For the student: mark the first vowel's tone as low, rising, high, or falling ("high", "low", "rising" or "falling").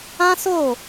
high